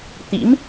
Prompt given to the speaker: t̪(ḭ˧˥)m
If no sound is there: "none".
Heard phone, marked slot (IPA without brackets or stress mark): ḭ˧˥